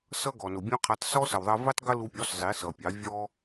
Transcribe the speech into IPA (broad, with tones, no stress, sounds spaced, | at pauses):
s ʌ˦ ɡ ɔ˨ n ʊ˨ bʲ ɔ̃˦ qʰ ɛ˧ tˤ s ɔ˦ s ə˨ w ðˤ ɜ˧ v i˦ tˤ ɡ ə˦ l u˧ pʲ ɔ˨˦ s zˤ i˨˦ s ʌ˨ pʲ ɑ˨˦ vʲ ɔ˦